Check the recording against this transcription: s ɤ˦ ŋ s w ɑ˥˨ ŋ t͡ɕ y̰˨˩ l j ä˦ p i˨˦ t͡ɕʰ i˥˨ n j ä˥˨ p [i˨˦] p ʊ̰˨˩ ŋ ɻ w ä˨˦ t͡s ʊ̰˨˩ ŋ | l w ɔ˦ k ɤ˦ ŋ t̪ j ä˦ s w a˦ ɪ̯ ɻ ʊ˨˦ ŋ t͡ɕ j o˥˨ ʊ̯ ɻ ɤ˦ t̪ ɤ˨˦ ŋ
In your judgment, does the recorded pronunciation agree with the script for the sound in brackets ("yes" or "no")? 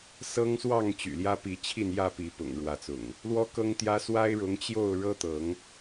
yes